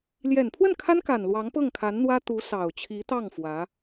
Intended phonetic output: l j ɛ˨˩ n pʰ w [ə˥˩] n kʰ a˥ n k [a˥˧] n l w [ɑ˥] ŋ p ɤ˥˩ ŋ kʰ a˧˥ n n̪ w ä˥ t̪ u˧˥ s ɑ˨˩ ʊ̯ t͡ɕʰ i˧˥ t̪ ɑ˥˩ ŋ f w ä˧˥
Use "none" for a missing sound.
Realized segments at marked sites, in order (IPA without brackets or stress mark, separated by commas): ə˥˩, a˨˩, ɑ˧˥